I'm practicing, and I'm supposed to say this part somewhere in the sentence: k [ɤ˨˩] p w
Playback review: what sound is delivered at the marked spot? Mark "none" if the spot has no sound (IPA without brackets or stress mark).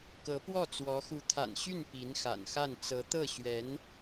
ɤ˧˥